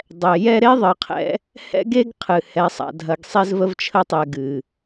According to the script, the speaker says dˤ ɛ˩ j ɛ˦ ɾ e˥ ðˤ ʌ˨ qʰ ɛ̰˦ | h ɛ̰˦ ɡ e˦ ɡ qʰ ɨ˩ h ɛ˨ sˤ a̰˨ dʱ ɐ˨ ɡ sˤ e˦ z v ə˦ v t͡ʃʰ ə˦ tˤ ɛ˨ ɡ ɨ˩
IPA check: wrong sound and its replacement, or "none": none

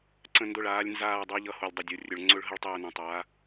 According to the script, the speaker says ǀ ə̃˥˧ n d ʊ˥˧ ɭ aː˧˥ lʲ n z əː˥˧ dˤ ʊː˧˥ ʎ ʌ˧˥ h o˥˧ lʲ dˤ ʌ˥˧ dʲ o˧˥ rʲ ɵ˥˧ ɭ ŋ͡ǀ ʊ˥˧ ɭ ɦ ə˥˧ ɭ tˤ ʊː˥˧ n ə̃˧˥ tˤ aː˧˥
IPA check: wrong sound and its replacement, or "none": əː˥˧ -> aː˥˧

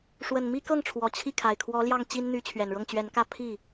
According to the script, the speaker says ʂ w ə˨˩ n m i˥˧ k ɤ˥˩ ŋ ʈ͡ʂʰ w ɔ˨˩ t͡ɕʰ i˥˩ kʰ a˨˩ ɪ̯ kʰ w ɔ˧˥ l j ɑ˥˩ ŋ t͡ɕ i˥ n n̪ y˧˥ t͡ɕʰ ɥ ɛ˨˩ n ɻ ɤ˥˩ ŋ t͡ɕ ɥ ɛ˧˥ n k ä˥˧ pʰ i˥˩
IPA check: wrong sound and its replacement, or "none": none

